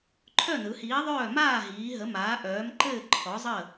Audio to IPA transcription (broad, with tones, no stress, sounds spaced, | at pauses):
ǃʰ œ˥˨ n ɯ˩˧ h iː˨˥ ðˤ œː˥˨ m aː˥˨ ɦ iː˩˧ ɦ ə˩˧ m aː˩˧ ʔ œː˩˧ m ǃ ɘː˥˨ ǃʰ ɔ˨˥ zˤ ə˥˨